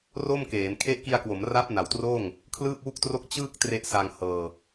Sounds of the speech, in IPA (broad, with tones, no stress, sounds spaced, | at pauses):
r o˥˩ m k eː˩˦ n kʰ e˦˥ ʔ k i˧ a̯ k w o˩˦ m r a˦˥ p̚ n a˩˦ w t r oː˥˩ ŋ | kʰ l ɯː˥˩ p̚ w u˥˩ k̚ t r o˥˩ k̚ t͡ɕ ɯː˥˩ k̚ t r e˦˥ ʔ s a˧ ŋ h ɤː˧